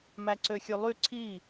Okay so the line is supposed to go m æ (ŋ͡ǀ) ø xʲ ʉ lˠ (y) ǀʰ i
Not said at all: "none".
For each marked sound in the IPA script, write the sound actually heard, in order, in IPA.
ǀ, y

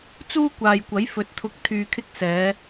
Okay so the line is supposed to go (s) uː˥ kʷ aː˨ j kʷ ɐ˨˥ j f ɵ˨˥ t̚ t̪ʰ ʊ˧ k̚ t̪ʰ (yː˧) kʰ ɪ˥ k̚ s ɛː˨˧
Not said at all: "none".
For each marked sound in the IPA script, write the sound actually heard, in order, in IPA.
t͡s, yː˧

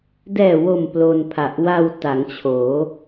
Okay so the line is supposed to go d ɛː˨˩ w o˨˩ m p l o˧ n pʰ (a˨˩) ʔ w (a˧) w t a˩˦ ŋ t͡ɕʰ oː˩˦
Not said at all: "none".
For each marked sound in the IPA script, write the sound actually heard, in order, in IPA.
a˨˩, a˧

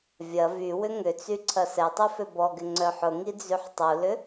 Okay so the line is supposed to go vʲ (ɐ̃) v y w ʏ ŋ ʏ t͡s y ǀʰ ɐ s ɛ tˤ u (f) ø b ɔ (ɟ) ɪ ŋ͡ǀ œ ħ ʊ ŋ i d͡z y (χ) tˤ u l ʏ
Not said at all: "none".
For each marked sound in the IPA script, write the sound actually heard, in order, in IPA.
ɐ, f, ɡ, ħ

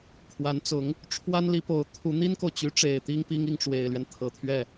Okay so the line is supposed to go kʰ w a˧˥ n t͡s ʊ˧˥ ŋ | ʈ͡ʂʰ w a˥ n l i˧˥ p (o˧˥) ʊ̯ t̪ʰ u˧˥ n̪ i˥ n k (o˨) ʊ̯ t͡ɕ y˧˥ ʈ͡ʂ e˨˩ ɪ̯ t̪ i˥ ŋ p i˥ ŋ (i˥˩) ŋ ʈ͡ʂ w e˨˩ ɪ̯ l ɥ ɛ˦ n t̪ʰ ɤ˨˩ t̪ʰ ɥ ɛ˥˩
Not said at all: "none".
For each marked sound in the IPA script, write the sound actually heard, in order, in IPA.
o˧˥, o˨, i˥˩

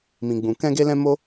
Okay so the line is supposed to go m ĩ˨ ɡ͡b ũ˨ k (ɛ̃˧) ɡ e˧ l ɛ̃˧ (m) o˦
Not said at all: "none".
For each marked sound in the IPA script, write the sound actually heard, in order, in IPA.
ɛ̃˧, m

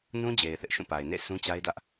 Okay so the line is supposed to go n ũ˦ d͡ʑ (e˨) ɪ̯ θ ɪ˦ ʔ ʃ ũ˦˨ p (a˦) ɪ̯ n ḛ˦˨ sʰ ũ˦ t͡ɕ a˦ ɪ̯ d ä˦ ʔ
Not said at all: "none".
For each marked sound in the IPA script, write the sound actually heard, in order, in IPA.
e˨, a˨

